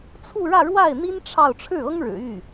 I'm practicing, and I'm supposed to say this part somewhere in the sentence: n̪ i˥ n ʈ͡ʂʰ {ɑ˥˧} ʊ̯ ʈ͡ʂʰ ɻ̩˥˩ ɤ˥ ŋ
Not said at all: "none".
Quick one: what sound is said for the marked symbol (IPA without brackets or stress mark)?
ɑ˥˧